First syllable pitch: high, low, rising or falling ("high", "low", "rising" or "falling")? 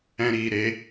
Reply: high